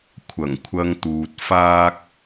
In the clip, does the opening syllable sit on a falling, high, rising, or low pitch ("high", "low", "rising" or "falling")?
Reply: low